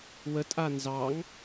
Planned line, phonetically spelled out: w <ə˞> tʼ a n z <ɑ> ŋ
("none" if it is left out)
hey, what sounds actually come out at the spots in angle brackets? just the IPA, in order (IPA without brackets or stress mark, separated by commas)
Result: ə, ɑ